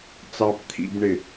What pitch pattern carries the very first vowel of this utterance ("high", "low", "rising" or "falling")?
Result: low